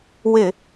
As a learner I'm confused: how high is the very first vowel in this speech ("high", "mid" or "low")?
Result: high